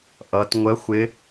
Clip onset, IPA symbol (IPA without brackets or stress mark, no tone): ʔ